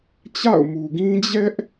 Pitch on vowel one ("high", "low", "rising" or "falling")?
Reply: falling